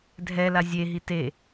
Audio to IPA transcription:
dʱɛla zʲeɦi te

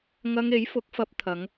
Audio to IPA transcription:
ŋɐ˧ŋe˨˥jfʊ˨˥k̚fɐ˧p̚ t̪ʰɐ˨˧ŋ

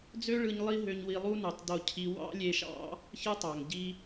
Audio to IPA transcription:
d͡zø˥ɭɯ˧ɲ lˠi˥ ɦø˧ɲwi˧ lˠu˥nu˩tˤdo˧cʰi˧ wɑ̰˥lʲe˧ʃɑ̰˥ | çɯ˥tˤɑ˩ŋ ɟi˧

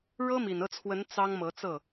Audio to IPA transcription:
ɻɤ˥mi˨˩nɤ˥˩t͡sʰwə˧˥n t͡sɑ˥ŋmɤ˧˥ t͡sɤ˥˩

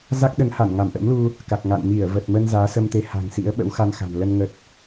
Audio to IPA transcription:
za˦˥k̚ɗə˨˦nha˧˩n ŋa˧˩mʔə̰˧˥mlu˧ | ka˨˩k̚ŋa̰˧˨n mi˧˩ə̯və˨˩t̚mə˧n zaː˨˦sə˧mt̪e˨˦ ha̤˨˩ŋsḭ˧˥ə̯ ɓə̰˧˥wxa˧nxa̤˨˩nlə˧n ŋə˨˩t̚

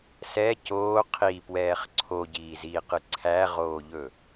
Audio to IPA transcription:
sɛ coː qʰipwɛːχ ǀʰoɟiːziːqɨ ǀʰæʁoːʎɵ

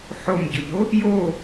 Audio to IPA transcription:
ħomɟʊʎo | jo

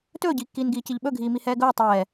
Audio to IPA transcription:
tɵːɟiːkːiːn ɡiːciʎɓɵɡʱiː mihɛːɡɵː tˤɛː

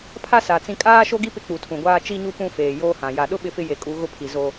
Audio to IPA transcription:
pʰa˦sa˨ t͡sĩ˦ kʼaː˦ʃo˦ɡi˦ pɪ˦k͡pu˨tʰũ˨ɡʷaː˦ t͡ʃi˦ɲu˦ pũ˦feː˨joː˦hã˨ ja˨ɗʊ˦ ɓɪ˦fɪ˦je˨kʼu˨˦ ɣʊ˦pʰi˨ zo˦

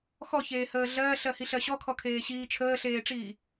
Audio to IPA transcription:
xɔçeːhəː ɮɜːɬɜhiɬɜ ɕɔkʰɔkʰeːɕiː t͡ʃʰəːɬeːʈ͡ʂiː

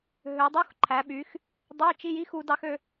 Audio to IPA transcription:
ɦø˨˦dˤu˧˥˧xǃʰæ˨˦ɓy˨˦x | dˤø˧˥˧t͡ʃi˧˥˧ji˧˥˧xu˨˦ dɑ˥xø˥

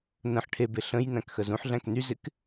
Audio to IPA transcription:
nə̃ħ ʈʰebe ɬə̃j næ̃kxəzũħɮæ̃k ny zɪk

